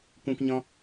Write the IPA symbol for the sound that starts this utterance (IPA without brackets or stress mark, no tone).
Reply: kʷ